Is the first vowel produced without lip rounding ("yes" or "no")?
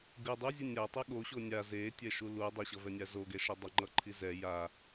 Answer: yes